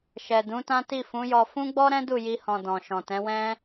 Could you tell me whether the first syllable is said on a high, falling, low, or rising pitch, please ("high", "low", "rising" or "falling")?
low